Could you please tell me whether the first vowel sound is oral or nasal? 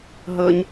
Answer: oral